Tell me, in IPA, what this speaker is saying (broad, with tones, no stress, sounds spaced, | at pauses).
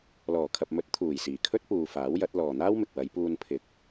l ɔː˨˩ kʰ ɐ˨ p̚ m ɵ˨˥ t̚ t̪ʰ uː˨˩ j s iː˨˩ kʰ ɵ˥ t̚ p uː˧ f aː˨˥ w j ɐ˨˥ t̚ l ɔː˨ n̪ aː˥ w m ɪ˨ k̚ w ɐ˨˧ j p uː˧ n pʰ ɪ˨˥ k̚